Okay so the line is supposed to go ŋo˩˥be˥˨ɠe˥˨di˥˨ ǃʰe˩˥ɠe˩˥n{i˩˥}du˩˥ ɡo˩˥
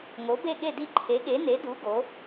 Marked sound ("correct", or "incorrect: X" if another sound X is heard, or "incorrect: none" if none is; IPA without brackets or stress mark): incorrect: e˩˥